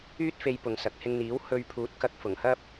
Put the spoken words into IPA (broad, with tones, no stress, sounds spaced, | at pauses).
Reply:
yː˥ t̚ f e˧ j p ʊ˨ ŋ s ɐ˨ k̚ h ɪ˧ ŋ n̪ iː˨˥ w h ɵ˧ ɥ pʰ uː˨˥ t̚ k ɐ˧ k̚ f ʊ˨˩ ŋ h ɐ˥ p̚